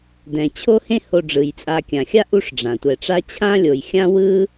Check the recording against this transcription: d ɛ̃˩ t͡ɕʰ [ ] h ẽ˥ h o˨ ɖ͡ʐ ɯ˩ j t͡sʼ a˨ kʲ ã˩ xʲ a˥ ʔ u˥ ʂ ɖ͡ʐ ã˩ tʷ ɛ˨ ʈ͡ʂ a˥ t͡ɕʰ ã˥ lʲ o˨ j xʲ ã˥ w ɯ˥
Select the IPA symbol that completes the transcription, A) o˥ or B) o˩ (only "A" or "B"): A